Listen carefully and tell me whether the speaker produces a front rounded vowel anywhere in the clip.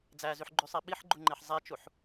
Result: yes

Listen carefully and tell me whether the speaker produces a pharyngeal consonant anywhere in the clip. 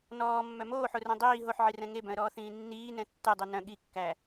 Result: yes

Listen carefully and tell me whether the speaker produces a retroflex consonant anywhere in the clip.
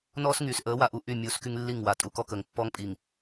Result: no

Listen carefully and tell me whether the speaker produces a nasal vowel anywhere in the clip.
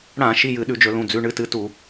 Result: yes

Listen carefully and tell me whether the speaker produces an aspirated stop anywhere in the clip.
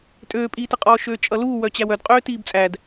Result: no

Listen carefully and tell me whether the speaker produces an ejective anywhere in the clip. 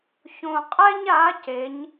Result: yes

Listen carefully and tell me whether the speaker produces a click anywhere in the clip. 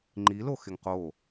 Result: yes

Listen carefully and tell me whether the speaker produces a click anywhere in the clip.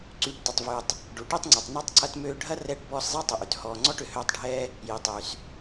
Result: yes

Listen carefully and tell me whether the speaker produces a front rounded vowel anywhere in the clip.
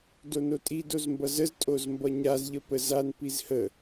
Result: no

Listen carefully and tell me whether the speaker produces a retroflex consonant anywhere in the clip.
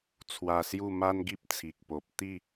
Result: no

